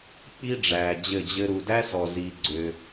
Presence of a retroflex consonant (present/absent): present